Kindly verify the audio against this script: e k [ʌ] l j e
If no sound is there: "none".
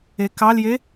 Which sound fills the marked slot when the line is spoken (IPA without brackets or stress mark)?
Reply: ɑ